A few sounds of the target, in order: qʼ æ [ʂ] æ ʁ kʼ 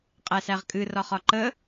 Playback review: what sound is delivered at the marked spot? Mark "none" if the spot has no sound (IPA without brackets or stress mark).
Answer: s